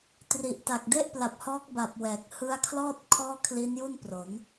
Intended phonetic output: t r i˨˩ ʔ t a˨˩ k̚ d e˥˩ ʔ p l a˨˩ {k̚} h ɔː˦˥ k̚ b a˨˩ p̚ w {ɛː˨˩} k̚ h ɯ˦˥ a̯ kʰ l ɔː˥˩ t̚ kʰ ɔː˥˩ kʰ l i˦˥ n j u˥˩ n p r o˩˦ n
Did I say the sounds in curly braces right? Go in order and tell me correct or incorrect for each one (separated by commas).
incorrect, correct